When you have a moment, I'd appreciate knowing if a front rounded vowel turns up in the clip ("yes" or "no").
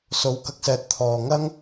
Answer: no